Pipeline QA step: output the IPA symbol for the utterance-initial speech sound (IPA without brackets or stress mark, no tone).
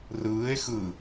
r